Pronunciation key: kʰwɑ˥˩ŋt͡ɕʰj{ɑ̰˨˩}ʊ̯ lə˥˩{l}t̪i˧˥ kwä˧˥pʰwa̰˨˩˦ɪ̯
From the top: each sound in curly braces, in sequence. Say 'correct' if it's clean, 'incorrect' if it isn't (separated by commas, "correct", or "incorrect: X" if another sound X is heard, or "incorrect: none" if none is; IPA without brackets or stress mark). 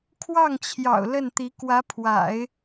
correct, incorrect: n